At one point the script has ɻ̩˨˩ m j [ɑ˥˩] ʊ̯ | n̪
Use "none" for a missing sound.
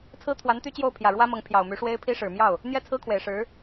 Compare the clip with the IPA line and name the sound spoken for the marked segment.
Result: ɑ˥˩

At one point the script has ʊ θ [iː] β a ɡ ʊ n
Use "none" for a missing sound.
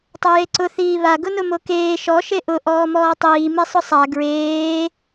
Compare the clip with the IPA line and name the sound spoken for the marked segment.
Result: iː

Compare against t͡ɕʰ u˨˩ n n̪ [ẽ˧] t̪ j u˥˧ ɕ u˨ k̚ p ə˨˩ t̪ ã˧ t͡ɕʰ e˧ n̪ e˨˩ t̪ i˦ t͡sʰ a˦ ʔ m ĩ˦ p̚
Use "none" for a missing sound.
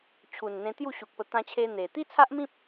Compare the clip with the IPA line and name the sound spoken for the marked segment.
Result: ẽ˧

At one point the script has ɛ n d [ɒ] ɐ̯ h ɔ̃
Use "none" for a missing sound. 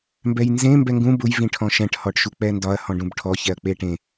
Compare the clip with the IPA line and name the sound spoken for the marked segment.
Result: ɒ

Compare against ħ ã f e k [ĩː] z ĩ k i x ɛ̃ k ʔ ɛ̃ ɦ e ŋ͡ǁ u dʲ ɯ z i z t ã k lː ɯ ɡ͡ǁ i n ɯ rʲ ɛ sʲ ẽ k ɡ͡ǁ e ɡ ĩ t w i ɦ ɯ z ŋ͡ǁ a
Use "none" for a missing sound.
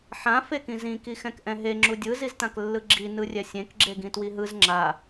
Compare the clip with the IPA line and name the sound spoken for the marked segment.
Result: ĩ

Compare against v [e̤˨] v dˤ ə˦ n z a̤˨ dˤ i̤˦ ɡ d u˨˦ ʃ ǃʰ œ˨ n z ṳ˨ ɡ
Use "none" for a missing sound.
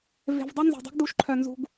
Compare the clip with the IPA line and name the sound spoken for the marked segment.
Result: e̤˨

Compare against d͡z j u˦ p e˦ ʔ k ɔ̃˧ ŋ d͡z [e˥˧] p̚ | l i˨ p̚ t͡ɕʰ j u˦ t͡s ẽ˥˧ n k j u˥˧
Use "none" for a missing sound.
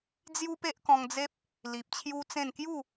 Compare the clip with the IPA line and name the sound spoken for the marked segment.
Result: e˦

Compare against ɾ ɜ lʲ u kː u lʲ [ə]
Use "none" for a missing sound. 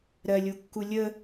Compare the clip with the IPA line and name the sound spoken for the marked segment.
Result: ə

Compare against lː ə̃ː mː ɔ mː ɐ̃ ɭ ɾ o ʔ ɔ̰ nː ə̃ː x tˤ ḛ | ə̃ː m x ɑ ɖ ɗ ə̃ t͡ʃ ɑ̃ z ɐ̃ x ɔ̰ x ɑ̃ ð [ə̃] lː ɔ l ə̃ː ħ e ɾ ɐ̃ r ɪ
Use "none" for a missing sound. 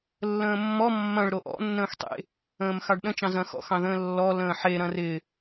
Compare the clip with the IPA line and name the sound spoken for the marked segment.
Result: ə̃ː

